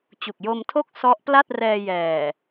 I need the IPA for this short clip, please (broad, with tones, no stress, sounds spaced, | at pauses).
t͡ɕ u˨˩ k̚ j o˧ m tʰ o˥˩ k̚ s ɔ˦˥ ʔ p l a˥˩ t̚ r ɛː˧ j ɛː˨˩